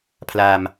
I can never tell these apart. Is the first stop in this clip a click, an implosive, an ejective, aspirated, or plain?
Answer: aspirated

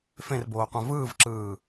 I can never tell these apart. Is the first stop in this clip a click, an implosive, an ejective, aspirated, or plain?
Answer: plain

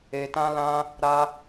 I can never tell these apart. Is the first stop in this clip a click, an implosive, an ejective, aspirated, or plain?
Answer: plain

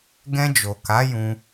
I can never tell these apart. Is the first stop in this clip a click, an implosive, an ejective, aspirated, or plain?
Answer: plain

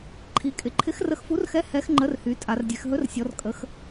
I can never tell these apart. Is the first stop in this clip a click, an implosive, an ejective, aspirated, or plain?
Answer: click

